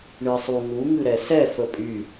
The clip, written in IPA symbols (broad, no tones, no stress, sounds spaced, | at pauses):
ɳ ɨ sˤ u ŋ u ŋ ɨ ɾ ɛ s ɛ f ə pʼ y